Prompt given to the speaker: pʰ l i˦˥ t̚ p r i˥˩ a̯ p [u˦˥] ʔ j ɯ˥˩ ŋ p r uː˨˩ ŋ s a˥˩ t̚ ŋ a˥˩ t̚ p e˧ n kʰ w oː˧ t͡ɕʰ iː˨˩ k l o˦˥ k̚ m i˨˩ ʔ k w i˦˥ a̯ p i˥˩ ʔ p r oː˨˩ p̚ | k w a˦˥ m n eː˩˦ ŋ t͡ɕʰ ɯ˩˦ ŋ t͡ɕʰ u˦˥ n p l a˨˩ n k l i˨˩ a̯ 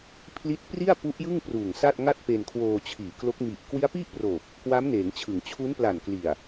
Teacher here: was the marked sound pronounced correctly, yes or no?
yes